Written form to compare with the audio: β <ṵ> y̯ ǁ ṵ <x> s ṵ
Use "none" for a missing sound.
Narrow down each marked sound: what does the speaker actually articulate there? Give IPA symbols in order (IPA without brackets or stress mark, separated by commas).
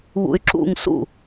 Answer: ṵ, ŋ